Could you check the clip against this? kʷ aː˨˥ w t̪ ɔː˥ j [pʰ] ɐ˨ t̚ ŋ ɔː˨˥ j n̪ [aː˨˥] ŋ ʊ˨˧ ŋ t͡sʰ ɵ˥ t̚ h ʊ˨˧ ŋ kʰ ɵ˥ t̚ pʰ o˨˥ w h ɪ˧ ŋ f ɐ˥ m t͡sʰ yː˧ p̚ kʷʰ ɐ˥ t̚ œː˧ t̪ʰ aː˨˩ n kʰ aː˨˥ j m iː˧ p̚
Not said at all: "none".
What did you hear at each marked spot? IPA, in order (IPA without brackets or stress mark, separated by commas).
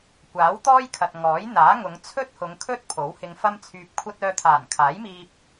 kʰ, aː˨˥